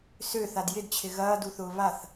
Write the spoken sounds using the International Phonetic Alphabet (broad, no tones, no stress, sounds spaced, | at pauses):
s ø θ a d j ɪ d t͡ɕʰ ɪ ɣ ɐː d u θ ʊː β a θ